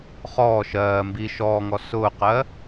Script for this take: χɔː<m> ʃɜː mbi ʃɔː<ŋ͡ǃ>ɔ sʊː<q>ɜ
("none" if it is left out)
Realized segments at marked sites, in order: none, ŋ, q

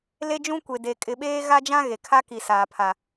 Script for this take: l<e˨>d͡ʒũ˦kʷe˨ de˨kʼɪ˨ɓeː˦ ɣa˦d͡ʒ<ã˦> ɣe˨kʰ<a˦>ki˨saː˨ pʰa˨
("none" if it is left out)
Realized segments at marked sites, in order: e˦, ã˦, a˦

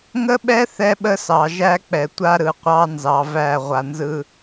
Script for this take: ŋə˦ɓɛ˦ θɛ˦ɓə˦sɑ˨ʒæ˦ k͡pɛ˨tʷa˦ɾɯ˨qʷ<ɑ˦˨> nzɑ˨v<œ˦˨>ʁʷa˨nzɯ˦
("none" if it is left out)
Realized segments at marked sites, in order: ɑ˦, æ˦˨

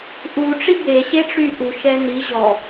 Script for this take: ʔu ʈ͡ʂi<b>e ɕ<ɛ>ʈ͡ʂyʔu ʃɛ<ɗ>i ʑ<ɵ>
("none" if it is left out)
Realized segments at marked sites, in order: b, e, n, ɔ

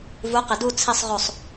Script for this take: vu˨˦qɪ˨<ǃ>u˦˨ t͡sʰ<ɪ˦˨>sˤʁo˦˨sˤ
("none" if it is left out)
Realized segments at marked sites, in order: d, i˦˨

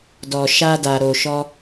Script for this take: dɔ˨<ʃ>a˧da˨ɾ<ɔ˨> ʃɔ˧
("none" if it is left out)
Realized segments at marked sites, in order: ʃ, o˨

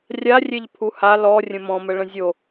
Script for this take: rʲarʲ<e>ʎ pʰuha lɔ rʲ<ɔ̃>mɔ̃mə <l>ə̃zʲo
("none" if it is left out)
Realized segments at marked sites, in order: e, ə̃, ɭ

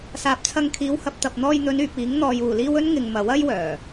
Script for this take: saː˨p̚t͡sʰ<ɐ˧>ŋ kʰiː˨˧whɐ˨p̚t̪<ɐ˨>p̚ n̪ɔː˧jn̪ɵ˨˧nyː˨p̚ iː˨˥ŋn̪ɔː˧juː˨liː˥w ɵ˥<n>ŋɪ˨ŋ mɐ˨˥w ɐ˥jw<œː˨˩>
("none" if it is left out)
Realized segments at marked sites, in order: ɐ˧, ɐ˨, n, œː˨˩

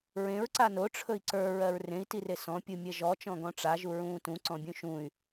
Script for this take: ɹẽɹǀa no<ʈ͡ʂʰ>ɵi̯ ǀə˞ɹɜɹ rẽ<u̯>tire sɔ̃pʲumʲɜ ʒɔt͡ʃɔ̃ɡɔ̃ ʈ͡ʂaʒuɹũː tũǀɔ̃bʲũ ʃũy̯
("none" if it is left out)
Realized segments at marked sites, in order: ʈ͡ʂʰ, i̯

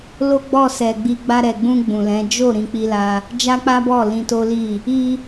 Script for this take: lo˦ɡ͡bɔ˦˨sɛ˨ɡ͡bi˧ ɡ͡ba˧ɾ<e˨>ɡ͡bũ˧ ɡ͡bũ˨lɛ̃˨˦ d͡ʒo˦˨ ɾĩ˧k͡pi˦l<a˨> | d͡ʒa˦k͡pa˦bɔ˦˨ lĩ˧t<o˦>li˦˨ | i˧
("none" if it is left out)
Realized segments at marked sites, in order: ɛ˨, a˦, o˦

